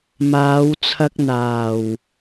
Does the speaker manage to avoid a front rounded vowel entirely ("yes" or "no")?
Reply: yes